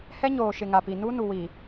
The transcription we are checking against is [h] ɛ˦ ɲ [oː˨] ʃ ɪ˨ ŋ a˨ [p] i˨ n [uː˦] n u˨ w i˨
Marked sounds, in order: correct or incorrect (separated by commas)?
correct, correct, correct, incorrect